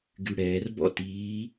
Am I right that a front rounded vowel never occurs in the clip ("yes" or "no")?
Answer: no